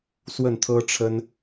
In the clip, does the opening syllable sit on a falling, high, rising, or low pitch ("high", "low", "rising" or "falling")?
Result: falling